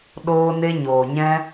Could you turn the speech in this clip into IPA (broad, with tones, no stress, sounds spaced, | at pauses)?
ɗ oː˧ n e˧ ɲ oː˨ ɲ ɛ̃˧